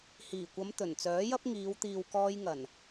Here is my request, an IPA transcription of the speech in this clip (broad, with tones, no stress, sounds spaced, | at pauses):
h iː˨˩ kʷ ɐ˨˧ m t̪ ɵ˨˩ n t͡s œː˨˥ j ɐ˥ p̚ ŋ iː˨˧ w t̪ iː˨ w k ɔː˧ j ŋ ɐ˨˩ n